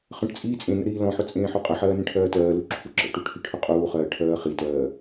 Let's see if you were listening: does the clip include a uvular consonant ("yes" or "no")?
yes